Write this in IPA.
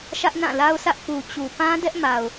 ʃ ä˦ ʔ n ã˦˨ l a˦ ʊ̯ s ä˦ ʔ p u˨ t͡ɕ u˨ p ã˦ d ɛ˦ ʔ m a˨ ʊ̯

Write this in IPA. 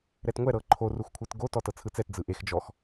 ɾ ɛ t ŋʷ ɛ ɾ ɤ ǃʰ o r u x kʷʰ ɯ t ɡ o t ɔ t ɤ t͡sʰ ɯ t͡s ɛ t d͡z ɯ ʔ e x d͡ʒ ɔ x

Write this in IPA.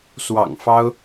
s w ɑ̰˨˩ ŋ f ɑ˥ ʊ̯

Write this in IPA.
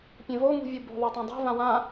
pʲ ẽ v o ŋ ṳ vʲ u b o̤ ðˤ a tˤ ã dˤ e̤ v ã w ã

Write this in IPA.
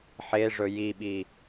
ħ e ʐ ɵ j i ɓ i

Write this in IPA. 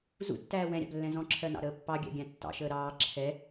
z ṵ tː æː w ɛ̃ ɾʲ ɑ̰ b lː ɛ̃ z ɔ̃ ǁʰ ɜ n ɑ̰ ɾ əː pː ɑ ɡʲ æ̰ ɡʲ æ̃ tː ɑ̰ ʃ əː ɾ ɑː ǁʰ ɛ

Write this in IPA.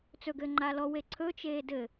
t͡s ɵ ɡ ɘː ŋ͡ǃ a l ɔ w e ǀʰ ɵ t͡ʃ eː d ɘ

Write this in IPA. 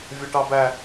vʲ ʌ ʈ ɑ b æ

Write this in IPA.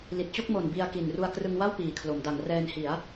l i˨˩ t̚ t͡ɕ o˥˩ k̚ m o˨˩ n b i˧ a̯ k i˨˩ n r u˧ a̯ k r ɯ˧ ŋ w a˥˩ w p iː˨˩ kʰ l o˩˦ m d a˩˦ ŋ r ɛː˧ n h i˩˦ a̯

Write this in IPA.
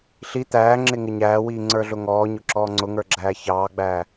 ɬ i t̪ æː ŋ͡ǁ ɪ ŋ ɪ ɲ æː w iː ŋ͡ǀ ə˞ ɮ ʊ ŋ ɔː ɲ ʊ ǁ ɔː ŋ͡ǀ ʊ ŋ ə˞ ɡ͡ǁ æː ç ɑː ɡ͡b æː

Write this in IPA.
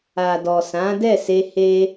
a˨ d ɔ˨ s ã˨˦ d ɛ˦˨ s e˧ h e˧

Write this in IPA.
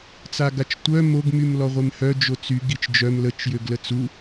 t͡s a ɡ a t͡ʃ tʷ œ m o ɡ m y m l ɔ ʁʷ e m h œ d͡ʒ o t͡s y ɡ i t͡ʃ d͡ʒ œ m l ə t͡ʃ j ø ɡ l ə t͡s u

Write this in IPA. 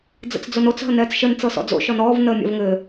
d͡z ə̰ t͡s d͡z o n o t͡s ɦ ə n ɛː t͡s ʃ ə n t͡s ɤ s ɔ̰ d͡z o̰ ʃ ɔ n ɔː v n əː mʲ a̰ v ŋ ɘː

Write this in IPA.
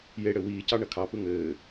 j e ɽ ɘ w iː c ɑ ɳ ɐ kʰ ɑ p ɯ ŋ ɘː

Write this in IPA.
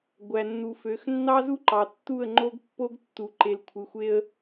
ɡʷ æ˨ nː u˨ f ø˨˦ x nː ɑ˦ z u˦ ǃ ɑ˨ tː u˦˨ ə̯ ŋ͡ǃ o˦ ɡ pː o˦ ɡ tː u˨ ǃ e˨ l kʷʰ ɯ˨ xʷ e˦ ə̯

